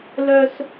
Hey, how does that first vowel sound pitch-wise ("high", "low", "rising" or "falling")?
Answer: high